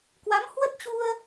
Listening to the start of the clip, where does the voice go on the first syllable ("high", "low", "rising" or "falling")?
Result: rising